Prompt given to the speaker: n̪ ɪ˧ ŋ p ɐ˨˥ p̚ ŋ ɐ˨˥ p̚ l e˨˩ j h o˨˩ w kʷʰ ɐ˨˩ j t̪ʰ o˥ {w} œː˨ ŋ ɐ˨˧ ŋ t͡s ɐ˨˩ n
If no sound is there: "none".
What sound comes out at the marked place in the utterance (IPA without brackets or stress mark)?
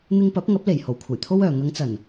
w